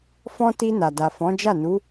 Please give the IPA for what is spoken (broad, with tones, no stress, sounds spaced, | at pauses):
f ɔ̃˦ t i˧ n a˨ d a˨ f ɔ̃˨˦ d͡ʒ a˦˨ n u˨˦